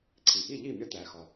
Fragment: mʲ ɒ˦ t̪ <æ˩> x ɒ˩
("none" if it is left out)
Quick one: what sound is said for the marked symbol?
æ˩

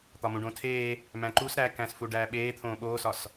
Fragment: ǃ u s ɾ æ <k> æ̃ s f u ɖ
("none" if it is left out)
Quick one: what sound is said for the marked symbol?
k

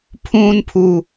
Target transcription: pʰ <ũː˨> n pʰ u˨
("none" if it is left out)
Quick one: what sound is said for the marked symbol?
ũː˨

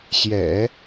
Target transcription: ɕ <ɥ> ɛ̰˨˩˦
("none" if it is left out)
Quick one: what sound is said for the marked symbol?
j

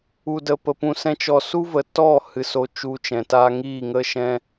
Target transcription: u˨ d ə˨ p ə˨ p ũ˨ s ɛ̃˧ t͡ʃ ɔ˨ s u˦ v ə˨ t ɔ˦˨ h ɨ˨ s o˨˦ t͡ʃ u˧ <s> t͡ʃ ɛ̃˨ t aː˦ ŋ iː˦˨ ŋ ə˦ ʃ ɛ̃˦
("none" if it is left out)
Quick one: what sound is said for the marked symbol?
none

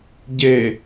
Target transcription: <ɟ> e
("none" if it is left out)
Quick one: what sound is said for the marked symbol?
ɟ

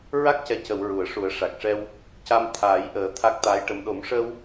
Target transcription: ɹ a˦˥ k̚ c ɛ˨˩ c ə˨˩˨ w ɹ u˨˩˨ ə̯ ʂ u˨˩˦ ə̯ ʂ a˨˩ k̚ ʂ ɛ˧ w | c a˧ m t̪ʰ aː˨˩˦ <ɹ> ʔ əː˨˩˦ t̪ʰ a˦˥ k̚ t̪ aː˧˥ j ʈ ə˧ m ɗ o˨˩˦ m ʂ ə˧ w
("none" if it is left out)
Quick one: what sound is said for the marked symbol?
j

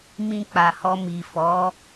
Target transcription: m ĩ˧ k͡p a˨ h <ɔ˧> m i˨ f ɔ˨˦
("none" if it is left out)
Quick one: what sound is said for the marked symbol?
ɔ˧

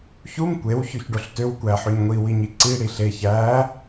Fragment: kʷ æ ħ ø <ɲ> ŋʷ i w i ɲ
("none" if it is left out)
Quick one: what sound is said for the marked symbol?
ɲ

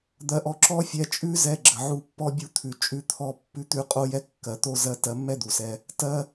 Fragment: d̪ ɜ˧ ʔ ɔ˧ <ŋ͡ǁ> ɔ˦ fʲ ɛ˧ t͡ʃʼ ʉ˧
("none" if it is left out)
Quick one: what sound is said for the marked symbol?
ǁ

